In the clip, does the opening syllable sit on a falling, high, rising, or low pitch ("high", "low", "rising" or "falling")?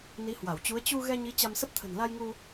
rising